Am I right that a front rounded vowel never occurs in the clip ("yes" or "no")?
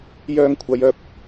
no